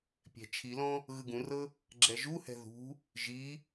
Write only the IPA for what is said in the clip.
pʲɛ̤t͡ʃʰilɔ̃ | ɣɯɡũrɤ | ɡ͡ǁɛʒuhɛ̤ ðṳ | ʒi

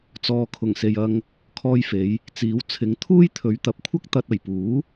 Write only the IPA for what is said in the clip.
t͡sɔː˨kʰʊ˨˩ŋ se˨jɐ˧ŋ | kʰɔː˧jfe˨˧j | t͡siː˨˧wt͡sʰɪ˨˧ŋt̪ʰuː˥j t̪ʰɵ˨˧ɥt̪ɐ˨˥p̚kʷʰɐ˥k̚ t̪ɐ˧t̚ɐ˨˩jpuː˨˥

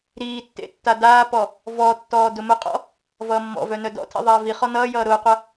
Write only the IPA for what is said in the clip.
ɾiːtːḛ tːadaːpɔ | vɔ tːɔːdʊmʊqʼɔ̰ | vʌːmːɔ̰vœ nœdɔ̰tʰḭ ðˤaːviχɔ nʌːjʌː ɾʊːqʷʌ

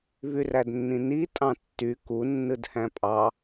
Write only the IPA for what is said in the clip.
vyrædnːĩni tʼɑ̃tːy kunːɯd hæ̃pʼɑ

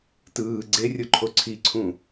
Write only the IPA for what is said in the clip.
tɯː ɡ͡ǀerʲoǃʰo ǀʰiǀʰũ

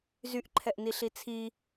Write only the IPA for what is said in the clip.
zyʔǃʰɛʔniɬi t͡sʰi

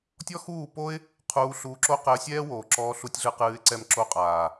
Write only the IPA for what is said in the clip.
tʲɔ˦xuː˦˨po˦ɪ̯ | qʰuː˧ɬuː˧ǁo˦ qɛ˧ə̯sʲɛː˦woː˨ǁɔː˧ ɬu˧tʲɮɨ˧qɨː˧ɪ̯ ǀɛ˧mǁo˧qʼaː˨

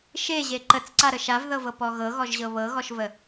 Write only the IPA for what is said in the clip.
ʃeʑe ǃət͡sǀaɾə ʃavðɤvɤpɔ ɣɤɣɔʒʑɤ βɤɣɔʃvə

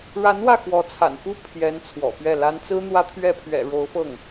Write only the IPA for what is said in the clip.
ɻa˧˥n wä˥˩xwɔ˧˥t͡sʰa̰˨˩nfu˥˩ pʰjɛ˧˥n t͡sʰwɔ̰˨˩pɥɛ˥˩la˥n t͡sɹ̩˥n̪wä˥t̪ʰɥɛ˥˩ pʰɥɛ̰˨˩ ɻo˧˥ʊ̯fɤ˥˩ŋ

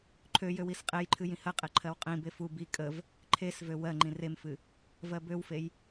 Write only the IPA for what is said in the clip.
ǃʰøjøw isqʼejǃʰɨ jĩhɜqʼe ǃʰɜwqʼĩbe fu bi kʼəv | ǃʰesvø wɜŋ͡ǃĩ remfɨ | vɜbøwfej

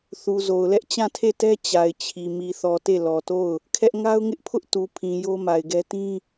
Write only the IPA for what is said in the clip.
θu˨zo˨ʊ̯lɛ˦ʔ t͡ɕã˦˨tʰe˦˨tɛ˦ t͡ɕa˨ɪ̯ t͡ɕʰi˨ mi˨θɔ˨te˦˨ lɔ˨to˦˨ʊ̯ | kʰɛ˦ʔ ŋa˦ʊ̯ŋɪ˦ʔpʰʊ˦ʔ tu˨pʰĩ˨ jo˦ma˨ɪ̯ɡɛ˦ tĩ˦

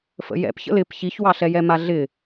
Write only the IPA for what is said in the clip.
fə̰jɛ̰pçə̰l ɪp çiçwɑɬɛjɛ maɮɪ

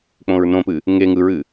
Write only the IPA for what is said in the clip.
k͡põɹnõpɨ | ŋe ŋɯɹɨ

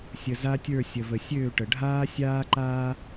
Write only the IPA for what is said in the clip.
sʲə˨za˦tʲə˞˦˨ sʲə˨və˨sʲøː˦˨ʈə˨ ɖʱaː˦sʲaː˦ǃaː˦

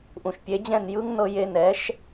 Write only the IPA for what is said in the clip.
ʔũ˩ʃpʲe˩˥d͡ʑɛ̃˥˩n jɯ˥ŋ nɤ˧je˧nɛ˩˥ʃ

